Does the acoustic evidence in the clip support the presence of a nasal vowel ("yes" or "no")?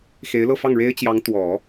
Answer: no